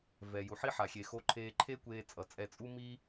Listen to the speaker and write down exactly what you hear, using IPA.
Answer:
vɛ˩ju˩ħi˥ ħa˩xʲe˩xo˧ ǃʰeː˧ǃʰe˥kʷeː˧ t͡sʼʌ˩t͡sʼɛ˧t͡sʼu˥ mi˥

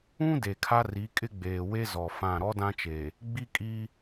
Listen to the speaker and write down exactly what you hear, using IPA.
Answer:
ũ˦ de˨kʰa˦ri˨˦kʼɪ˦ ɡ͡beː˨we˦ zɔ˨fã˦˨ ɾɔ˦dã˦t͡ʃe˨ | ɡ͡bi˦kʼi˦

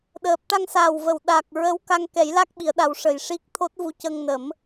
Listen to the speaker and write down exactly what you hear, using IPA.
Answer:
ɗəː˨˩p̚ ʈa˧ŋsaː˨˩wvə˨˩˨w ɗa˨˩k̚ ɹə˧˥wka˧ŋkɛ˨˩˦j la˦˥k̚ ɓi˨˩˨ə̯ɗa˨˩˦w ʂə˨˩j ʂi˦˥k̚ t̪ʰo˦˥t̚vu˧˥cə˧ŋnə˨˩˦m

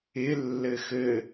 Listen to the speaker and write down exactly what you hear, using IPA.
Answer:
ɪ lːɘxɘ

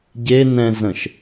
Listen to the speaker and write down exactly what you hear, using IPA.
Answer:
ɟe nɛ̃zə̃ʃ

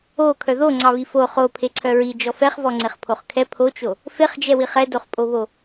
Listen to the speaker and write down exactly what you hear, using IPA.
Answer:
o kʰœðo ŋ͡ǀɑβifo χo pʰeǀʰœɹi d͡ʒɔfɛχvɔ ŋ͡ǀeχpʰoχkʰɛ pʰot͡ʃo | feχd͡ʒɛwiχ ɛdoχpʼoβo

